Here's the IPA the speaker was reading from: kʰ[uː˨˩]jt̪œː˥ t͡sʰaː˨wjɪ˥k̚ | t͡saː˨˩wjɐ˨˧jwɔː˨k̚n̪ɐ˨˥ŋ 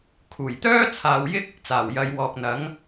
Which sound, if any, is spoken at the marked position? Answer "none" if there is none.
uː˨˩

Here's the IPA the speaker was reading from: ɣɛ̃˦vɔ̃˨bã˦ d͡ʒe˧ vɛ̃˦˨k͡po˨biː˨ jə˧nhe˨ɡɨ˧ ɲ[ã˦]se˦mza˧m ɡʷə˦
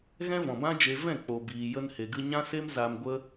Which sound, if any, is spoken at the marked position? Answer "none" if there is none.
ã˦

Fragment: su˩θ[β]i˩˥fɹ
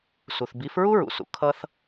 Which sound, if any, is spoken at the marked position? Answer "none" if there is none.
b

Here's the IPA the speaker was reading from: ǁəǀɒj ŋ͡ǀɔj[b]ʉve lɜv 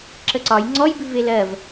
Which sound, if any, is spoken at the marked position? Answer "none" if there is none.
b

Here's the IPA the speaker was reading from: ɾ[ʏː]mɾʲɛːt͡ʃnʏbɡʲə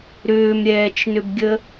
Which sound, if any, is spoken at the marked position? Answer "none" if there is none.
ʏː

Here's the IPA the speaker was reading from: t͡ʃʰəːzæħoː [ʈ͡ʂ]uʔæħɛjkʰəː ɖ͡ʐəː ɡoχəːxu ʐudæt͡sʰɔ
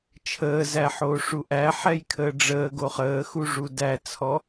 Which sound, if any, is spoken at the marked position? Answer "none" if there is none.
ʂ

